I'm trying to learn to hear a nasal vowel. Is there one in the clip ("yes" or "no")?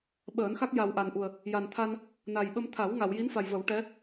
no